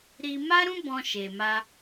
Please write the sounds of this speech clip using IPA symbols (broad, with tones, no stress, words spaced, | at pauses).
ɾi˧ma˦ɾũ˦ bɔ̃˦ʃe˧ma˦